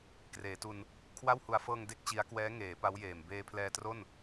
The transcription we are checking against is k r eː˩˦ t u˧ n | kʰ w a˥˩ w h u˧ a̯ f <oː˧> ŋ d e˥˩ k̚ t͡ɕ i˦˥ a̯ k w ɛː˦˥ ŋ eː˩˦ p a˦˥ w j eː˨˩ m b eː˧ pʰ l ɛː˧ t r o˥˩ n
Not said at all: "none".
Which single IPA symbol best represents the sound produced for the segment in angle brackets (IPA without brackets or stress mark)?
ɤː˧